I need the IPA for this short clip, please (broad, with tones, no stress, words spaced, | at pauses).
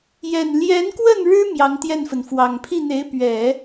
jɛ˨˩nljɛ˧˥nkwə˥˩n ɻɻ̩˥ mjɑ˧˥ŋt̪jɛ˥˩nfə˩nfwɑ˨˩ŋ pʰi˥˩n̪e˧˥ɪ̯pɥɛ˨˩˦